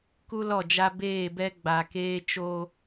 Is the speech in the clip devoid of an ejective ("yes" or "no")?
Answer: yes